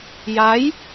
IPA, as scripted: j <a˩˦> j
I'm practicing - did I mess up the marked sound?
yes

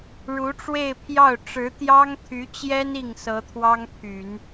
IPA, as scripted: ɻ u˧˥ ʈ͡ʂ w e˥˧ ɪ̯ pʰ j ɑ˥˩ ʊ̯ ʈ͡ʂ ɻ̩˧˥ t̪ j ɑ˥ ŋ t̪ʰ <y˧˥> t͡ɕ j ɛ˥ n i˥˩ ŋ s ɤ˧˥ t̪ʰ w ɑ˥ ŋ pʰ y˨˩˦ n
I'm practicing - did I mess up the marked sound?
no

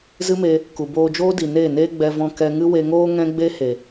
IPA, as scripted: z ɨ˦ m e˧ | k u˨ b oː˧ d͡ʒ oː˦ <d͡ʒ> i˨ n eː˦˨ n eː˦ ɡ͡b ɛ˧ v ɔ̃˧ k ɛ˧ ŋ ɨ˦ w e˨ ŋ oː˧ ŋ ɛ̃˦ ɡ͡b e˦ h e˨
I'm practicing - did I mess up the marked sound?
yes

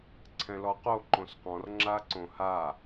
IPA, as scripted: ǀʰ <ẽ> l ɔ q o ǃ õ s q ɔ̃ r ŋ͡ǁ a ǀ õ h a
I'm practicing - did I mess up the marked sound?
yes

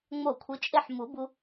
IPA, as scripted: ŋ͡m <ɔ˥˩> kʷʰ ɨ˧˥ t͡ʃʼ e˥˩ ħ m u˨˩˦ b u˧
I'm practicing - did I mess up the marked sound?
yes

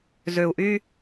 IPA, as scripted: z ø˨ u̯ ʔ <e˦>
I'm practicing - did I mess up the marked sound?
yes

